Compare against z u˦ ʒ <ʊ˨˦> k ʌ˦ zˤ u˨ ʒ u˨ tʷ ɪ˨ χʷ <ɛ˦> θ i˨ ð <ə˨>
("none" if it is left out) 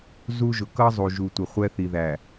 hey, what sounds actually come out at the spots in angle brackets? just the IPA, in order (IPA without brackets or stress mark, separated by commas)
ʊ˨, ɛ˦, æ˨